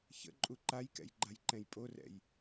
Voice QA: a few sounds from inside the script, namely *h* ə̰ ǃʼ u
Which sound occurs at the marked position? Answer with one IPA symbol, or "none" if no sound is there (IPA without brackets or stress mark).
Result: ç